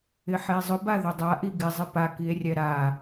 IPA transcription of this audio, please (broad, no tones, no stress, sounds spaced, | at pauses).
ɪ ħ e zˤ ʊ b a ð ʊ dˤ a ʔ i ɡ ɪ zˤ ɪ p a k i e̯ rʲ ɛ ɾ a